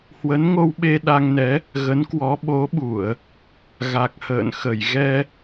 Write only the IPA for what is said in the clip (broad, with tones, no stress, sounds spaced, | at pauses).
h w ə˨˦ n ŋ o˧ w ɓ e˧ ɗ a˧ ŋ n ɛ˨˦ | ɣ ə˨˦ n k w ɔ˨˦ ɓ o˨˦ ɓ u˧˩˨ ə̯ | ɣ a˨˩ k̚ h ə̰ː˧˨ n x ə˧˩ j ɣ ɛ˧